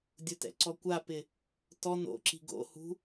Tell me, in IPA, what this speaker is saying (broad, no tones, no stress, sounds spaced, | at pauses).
dʲ ʊ t ɛ̰ ǀ ɔ kʷ a p ɪ | t ɔ n o̰ ǁ i̤ ɡ o̰ h ṳ